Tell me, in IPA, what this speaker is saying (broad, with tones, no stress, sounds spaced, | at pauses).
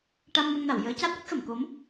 ʈ a˧ m n ə˧ ŋ n a˨˩˨ w j əː˧˥ c aː˦˥ t̚ w ə˦˥ k̚ x ə˨˩˨ m k o˧˥ m